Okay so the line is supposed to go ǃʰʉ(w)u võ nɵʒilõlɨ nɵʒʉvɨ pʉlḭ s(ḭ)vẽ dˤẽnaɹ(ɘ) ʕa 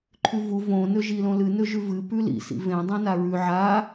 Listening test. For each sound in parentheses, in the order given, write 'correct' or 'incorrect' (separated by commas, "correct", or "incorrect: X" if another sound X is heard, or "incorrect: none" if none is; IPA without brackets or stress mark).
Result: incorrect: v, correct, incorrect: ʉ